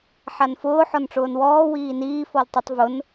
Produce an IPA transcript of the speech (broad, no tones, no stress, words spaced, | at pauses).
ħanfʊː ħɔnʈ͡ʂʊːnwɔː wiːniː fɔltˤʊtˤ vʊn